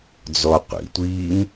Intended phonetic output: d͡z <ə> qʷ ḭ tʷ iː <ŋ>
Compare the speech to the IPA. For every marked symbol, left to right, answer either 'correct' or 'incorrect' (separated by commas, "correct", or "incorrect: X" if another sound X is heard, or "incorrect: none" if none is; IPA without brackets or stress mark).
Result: incorrect: ɔ, correct